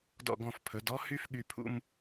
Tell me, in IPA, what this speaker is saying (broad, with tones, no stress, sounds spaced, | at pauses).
d ɔ̰˧˩ ɡ ɔ̃˧˩ f pʰ ɵ˩˧ d ɔ˥ h y˥ f ɠ y˧ pʰ ṵ˥˧ m